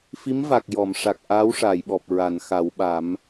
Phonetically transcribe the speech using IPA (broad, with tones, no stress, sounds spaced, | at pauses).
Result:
f i˧˥ m v a˨˩ k̚ j ɔ˨˩˨ m ʂ a˨˩ k̚ ʔ aː˧˥ w ʂ aː˨˩˨ j ɓ ɔ˨˩ p̚ ɹ a˨˩˨ n x a˨˩˦ w ɓ a˨˩˦ m